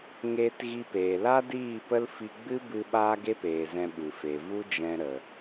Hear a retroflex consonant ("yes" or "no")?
no